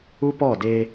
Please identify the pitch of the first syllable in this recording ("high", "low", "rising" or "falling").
high